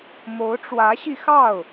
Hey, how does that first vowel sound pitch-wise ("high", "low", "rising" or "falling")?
rising